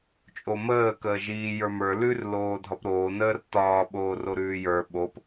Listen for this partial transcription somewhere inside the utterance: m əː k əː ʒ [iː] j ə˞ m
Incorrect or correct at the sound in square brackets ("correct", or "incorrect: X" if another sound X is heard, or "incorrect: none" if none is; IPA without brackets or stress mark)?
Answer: correct